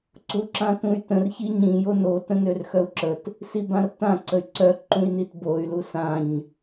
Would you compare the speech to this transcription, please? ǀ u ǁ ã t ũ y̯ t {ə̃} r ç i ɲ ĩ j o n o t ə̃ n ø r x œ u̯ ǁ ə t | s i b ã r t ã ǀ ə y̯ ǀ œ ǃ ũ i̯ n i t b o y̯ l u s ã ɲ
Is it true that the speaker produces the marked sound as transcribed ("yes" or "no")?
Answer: yes